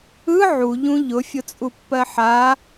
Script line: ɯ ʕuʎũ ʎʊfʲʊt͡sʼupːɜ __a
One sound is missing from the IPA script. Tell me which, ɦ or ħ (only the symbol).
ħ